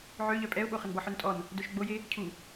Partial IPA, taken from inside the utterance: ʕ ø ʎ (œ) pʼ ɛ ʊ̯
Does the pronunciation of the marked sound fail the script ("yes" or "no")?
no